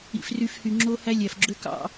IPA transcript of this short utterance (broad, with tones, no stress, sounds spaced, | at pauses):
ḭ˦ f r y˦ f h y˨ ŋ͡ǁ o˦ h æ˦ lʲ æ˨ f ɡ͡ǁ ø˦ k ɑ̰˦